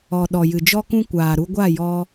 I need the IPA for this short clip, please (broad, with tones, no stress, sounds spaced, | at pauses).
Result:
ɔ˨ ɗ ɔ˨ j ɨ˨ d͡ʒ ɔ˦ k ũ˦ kʷ aː˨ ɾ u˧ ɡʷ a˦˨ j ɔ˧